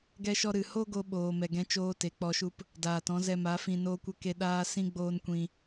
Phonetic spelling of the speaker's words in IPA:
ɡ ɛ˧ ʃ ɔ˧ ɾ ɨ˨ h o˦ ɡ o˧ ɓ oː˨ m ɛ˨ ɡ ɛ̃˧ t͡ʃ oː˦ t e˨˦ k͡p ɔ˧ ʃ u˦ p | d aː˨ t ɔ̃˨˦ z ɛ˧ m a˨˦ f ĩ˧ n oː˦ kʷ ə˦ k e˦ ɗ aː˦ s ĩ˦ ɡ͡b oː˦ n kʷ ĩ˧

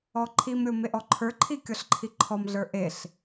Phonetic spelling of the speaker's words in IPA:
ɔ ǃʰ i m ɾʲ o m e ʔ ɔ ǃʰ ə˞ ǃʰ i kʲ ɔ ɬ ǃʰ i ǃʰ ɔ m ɮ ə˞ ʔ e ɬ

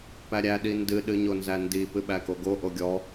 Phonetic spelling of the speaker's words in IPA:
p æ ɾʲ æ ɗ i n d ɨ ɗ ɨ ɲ o n z æ n d i p ɨ ɓ æ k o ɡ o ʔ o ɡʲ ɔ

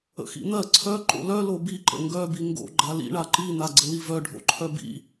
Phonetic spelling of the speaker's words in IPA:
ə̰ x ḭ n̪ ɜ ǀʰ œ ǃ o̰ l œ l o b i ǃ ə̰ ŋ ɡ œ b i ŋ ɡ o̰ ɡ͡ǃ a l ḭ ɳ a ǃ i n̪ a ɡ͡ǀ ə l i v œ ɖʱ o̰ ǃʰ œ b ḭ

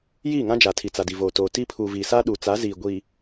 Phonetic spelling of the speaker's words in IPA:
j iː˦˨ ŋ ã˦ d͡ʒ a˨ tʰ i˨ t͡s a˨ d i˨ v oː˨ t oː˨ t iː˦ pʰ uː˨ v iː˨ s a˦ ɗ uː˨ t͡s a˨˦ z iː˨ ɡʷ i˨

